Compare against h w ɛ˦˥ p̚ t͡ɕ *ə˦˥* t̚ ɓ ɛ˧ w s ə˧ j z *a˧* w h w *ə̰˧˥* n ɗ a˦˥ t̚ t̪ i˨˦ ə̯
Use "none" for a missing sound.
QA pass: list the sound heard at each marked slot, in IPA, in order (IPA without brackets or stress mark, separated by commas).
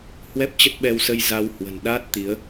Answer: ə˦˥, a˧, ə̤˨˩